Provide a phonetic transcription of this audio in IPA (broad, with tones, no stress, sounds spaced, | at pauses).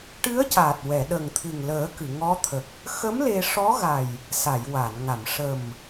ʈ ɨ˧˥ ə̯ c aː˨˩ t̚ w ɛ˨˩˨ ɗ ə˨˩ ŋ t̪ʰ ɨ˨˩ ŋ l əː˨˩˦ k ɨ˨˩˨ ŋ ɔ˧˥ t̪ʰ ə˨˩ k̚ | x ə˧˥ m l e˧ ʂ ɔ˧˥ ɣ a˨˩ j | s a˨˩˨ j w a˨˩˨ n ŋ a˨˩˨ m ʂ ə˨˩ m